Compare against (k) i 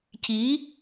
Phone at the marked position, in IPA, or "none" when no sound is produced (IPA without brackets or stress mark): c